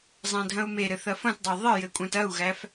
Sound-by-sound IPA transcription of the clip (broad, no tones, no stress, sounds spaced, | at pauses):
zˤ æ̃ dʱ ɐ̃ u̯ m e ɾ ɘ θ ɐ f ɐ̃ t dˤ ɐ y̯ ðˤ ɘ j ɘ kʷʼ æ̃ t ɐ u̯ ɣ æ f